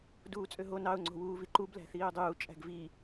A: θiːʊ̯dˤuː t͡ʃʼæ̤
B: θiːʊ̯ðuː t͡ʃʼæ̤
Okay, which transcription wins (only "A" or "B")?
A